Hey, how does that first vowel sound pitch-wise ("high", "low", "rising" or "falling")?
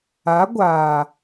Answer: rising